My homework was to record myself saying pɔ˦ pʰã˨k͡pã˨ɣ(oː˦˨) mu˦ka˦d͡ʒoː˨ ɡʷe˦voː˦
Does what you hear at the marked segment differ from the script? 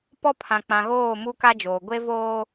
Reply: no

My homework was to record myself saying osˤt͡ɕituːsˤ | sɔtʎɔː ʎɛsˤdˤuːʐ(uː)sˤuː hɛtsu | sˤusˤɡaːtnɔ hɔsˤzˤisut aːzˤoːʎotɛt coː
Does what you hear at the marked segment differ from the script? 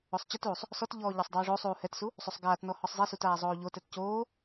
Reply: yes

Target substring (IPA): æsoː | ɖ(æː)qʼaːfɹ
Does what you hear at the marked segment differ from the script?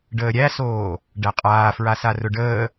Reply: yes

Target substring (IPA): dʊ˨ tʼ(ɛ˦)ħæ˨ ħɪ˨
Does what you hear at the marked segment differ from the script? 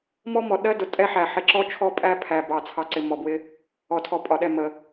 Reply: no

